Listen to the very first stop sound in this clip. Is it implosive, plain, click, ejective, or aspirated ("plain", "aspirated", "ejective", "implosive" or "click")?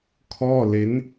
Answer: aspirated